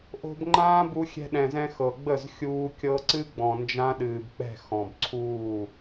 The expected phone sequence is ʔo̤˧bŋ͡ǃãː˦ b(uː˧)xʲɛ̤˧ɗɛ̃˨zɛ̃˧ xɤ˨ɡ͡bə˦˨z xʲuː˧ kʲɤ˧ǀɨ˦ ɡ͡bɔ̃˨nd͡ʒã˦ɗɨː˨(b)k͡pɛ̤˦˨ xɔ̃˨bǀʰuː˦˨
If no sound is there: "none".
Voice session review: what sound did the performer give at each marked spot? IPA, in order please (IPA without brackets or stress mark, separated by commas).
u˧, b